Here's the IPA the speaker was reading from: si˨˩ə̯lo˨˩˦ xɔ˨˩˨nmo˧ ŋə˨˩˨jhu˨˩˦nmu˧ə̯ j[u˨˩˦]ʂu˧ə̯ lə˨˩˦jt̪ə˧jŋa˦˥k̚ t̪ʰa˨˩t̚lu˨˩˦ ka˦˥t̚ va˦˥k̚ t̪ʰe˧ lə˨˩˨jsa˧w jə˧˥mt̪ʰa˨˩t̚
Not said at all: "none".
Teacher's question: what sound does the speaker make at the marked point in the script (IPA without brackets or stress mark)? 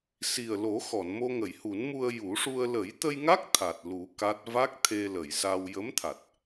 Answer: u˨˩˦